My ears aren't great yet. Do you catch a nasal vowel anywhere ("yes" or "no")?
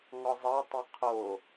no